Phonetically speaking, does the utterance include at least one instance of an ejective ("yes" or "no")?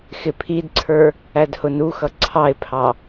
no